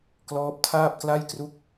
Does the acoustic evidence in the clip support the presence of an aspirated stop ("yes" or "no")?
yes